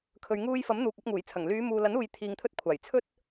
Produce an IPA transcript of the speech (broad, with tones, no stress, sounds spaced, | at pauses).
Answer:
kʰ ɵ˨ ɥ ŋ uː˧ j f ɐ˨˥ m n̪ uː˨ k̚ ɐ˨˥ p̚ ŋ uː˨˩ j t͡sʰ ɐ˨˩ ŋ l yː˨˧ m uː˨ l ɐ˨˥ n uː˨ j t̪ʰ iː˧ ŋ t̪ʰ ɵ˥ t̚ kʷʰ aː˨˩ j t͡sʰ ɵ˥ t̚